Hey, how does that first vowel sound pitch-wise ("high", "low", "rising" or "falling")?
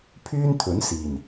high